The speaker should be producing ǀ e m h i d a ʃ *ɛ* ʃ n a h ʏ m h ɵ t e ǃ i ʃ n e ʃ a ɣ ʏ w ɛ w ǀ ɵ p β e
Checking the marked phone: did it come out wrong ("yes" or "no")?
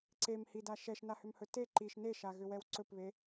no